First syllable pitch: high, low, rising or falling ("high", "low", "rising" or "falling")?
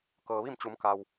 low